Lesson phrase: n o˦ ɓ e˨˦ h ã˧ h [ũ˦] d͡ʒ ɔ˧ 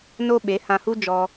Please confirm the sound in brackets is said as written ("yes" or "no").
no